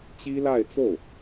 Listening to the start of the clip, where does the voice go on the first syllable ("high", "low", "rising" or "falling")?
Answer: high